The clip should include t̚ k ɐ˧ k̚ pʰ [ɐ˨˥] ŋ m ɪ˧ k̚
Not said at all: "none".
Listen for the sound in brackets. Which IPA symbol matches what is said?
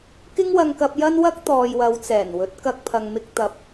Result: ɐ˨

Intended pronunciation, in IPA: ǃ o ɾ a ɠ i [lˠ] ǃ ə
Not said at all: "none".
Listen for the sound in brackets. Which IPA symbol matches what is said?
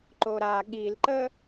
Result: l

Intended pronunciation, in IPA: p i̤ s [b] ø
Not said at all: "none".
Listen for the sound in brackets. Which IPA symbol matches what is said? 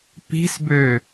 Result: b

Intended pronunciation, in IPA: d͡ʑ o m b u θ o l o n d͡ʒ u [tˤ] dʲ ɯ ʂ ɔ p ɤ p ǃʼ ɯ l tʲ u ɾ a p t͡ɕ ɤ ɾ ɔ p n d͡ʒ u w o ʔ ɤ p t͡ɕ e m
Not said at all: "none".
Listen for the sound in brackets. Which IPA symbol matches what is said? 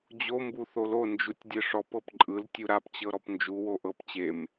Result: tʲ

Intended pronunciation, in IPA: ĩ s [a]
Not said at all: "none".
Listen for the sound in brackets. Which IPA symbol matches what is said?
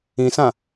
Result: ã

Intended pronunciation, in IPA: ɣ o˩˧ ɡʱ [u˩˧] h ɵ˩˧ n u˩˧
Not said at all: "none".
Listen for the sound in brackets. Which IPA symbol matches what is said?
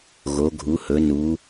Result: u˩˧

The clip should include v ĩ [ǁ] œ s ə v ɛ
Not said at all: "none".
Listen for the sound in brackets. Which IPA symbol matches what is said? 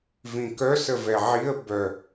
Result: k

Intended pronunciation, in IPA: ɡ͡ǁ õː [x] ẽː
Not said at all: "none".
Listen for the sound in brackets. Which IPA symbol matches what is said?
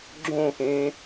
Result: x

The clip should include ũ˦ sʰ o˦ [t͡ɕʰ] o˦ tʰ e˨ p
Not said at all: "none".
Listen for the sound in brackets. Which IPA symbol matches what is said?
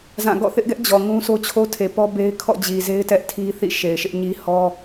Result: t͡ɕʰ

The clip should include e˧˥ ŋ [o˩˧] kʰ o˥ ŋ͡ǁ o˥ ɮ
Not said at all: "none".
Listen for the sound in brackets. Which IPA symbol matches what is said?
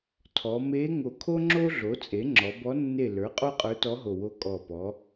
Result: o˨˩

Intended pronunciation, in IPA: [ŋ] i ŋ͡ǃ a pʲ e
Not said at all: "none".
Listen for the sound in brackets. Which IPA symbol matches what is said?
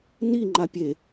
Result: n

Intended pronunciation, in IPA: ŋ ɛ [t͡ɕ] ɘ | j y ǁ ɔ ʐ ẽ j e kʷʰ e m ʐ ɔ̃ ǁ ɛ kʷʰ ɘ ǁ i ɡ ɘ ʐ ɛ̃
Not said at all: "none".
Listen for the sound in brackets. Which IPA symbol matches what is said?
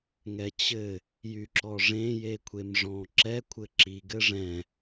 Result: t͡ɕ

